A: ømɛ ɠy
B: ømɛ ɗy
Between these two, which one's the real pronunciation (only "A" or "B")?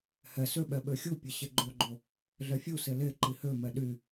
B